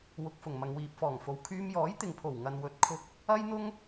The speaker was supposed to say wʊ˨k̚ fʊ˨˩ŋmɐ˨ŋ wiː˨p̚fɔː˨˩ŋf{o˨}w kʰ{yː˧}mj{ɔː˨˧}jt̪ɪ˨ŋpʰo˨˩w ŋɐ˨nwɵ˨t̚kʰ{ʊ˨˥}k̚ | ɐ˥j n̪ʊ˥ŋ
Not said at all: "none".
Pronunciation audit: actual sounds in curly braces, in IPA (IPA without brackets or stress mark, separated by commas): o˨, yː˧, ɔː˨˥, ʊ˧